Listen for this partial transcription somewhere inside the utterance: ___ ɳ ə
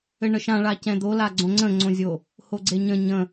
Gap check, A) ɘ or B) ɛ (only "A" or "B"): A